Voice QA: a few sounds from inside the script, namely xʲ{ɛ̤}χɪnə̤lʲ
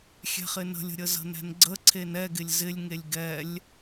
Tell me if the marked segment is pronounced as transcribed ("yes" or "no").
yes